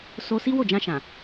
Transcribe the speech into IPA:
s o˧ s i˦ w o˦˨ d͡ʒ ã˧ ʃ ã˨

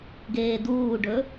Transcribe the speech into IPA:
ɡ eː d uː ɖ ɵ

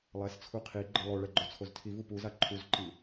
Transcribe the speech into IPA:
lˠ ɛ s t͡sʰ u qʰ i ɡ͡ǃ ɯ lˠ o ɭ ɛ ɡ͡ǃ o t͡sʰ o z tʰ i v u p u z a ǃʰ u z ǃ i

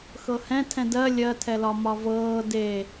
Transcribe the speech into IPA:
x ɤ h ɛ̃ tʰ ɛ̃ d ɜ lʲ ɜ tʰ ɛ l ɒ m ɒ v ɤː d e

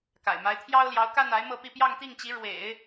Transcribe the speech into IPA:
k a̰˨˩ ɪ̯ m a˧˥ ɪ̯ t̪ʰ j ɑ˥ ʊ̯ l j ɑ˧˥ ʊ̯ k ä˥ n̪ a˧˥ ɪ̯ m ɤ˥˧ p i˥˧ p j ɑ˥˧ ŋ t̪ i˥˩ ŋ t͡ɕ i˧˥ ɻ w ḛ˨˩˦ ɪ̯

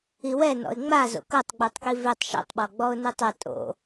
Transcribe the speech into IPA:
i w ɛ n ɔ̰ ɪ̯ ŋ͡m a z o̰ k ɤ tˤ ɡ͡b u tˤ k i v e tˤ ʃ o̰ tˤ ɓ ɔ ɡ͡b ɔ ʊ̯ n u tˤ ɤ tʼ o̰

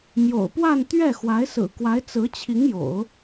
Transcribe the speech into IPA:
m j o̰˨˩ ʊ̯ p w a˥˧ n t̪ ɥ ɛ˥˩ x w a˧˥ ɪ̯ s ɹ̩˨˩ k w a˧˥ ɪ̯ t͡s ɹ̩˧˥ t͡ɕʰ i˧˥ ŋ j o̰˨˩˦ ʊ̯

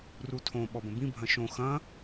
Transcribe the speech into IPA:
r u tʰ õ ɓ ɔ b ə̃ b ĩ bʱ ɐ̃ ʃ õ x ɐ̃

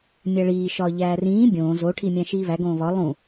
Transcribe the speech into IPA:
mʲ æ ɭ iː ʃ ɒː ʎ æː r ĩː bʲ õː z o ʈʰ i mʲ æ̃ ʃ iː β æ ɡ õː β ɒ lˠ ũ

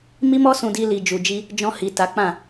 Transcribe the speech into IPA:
m i˦ m ɔ˦ s ũ˧ d i˧ l i˨ d͡ʒ u˨ d͡ʒ i˧ | d͡ʒ ɔ̃˧ h i˨ t a˨˦ k͡p ã˦˨

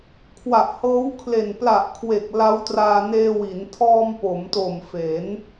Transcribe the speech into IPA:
kʰ w a˨˩ ʔ h ɤː˦˥ w kʰ l e˨˩ n p l a˨˩ ʔ kʰ w e˨˩ k̚ l a˦˥ w t r aː˧ n eː˧ w i˩˦ n tʰ ɔː˧ m p o˩˦ m t o˨˩ m f e˩˦ n

